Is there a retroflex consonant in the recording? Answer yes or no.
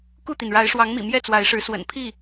yes